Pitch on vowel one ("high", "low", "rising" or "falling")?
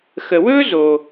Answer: low